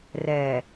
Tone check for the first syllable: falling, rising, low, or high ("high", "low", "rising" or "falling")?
low